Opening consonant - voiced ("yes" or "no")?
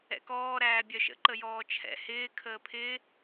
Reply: no